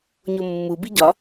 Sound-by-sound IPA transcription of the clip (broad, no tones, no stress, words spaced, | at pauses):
ɲomːubi ɟɒ